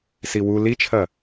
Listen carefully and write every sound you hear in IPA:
s i w u l i t͡ʃʰ ɐ

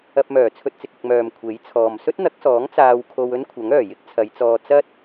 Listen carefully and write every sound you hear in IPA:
ɐ˧ p̚ m œː˨˩ t͡sʰ ɵ˧ t̚ t͡s ɪ˨ k̚ ɪ˧ k̚ m œː˨ m kʷʰ e˨˥ j t͡sʰ ɔː˨ m s ɵ˥ t̚ n̪ ɐ˨˥ k̚ s ɔː˨˥ ŋ t͡s aː˧ w kʰ o˧ w ɵ˥ n kʷʰ ɐ˨˥ ŋ œː˨˩ j ɪ˥ k̚ t͡sʰ ɐ˨˧ j t͡s ɔː˧ t͡s ɐ˥ t̚

